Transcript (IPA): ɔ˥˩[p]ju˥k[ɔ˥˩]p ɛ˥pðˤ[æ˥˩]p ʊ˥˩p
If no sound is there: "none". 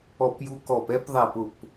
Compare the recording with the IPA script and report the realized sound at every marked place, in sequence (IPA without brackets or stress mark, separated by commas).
p, ɔ˥˩, æ˥˩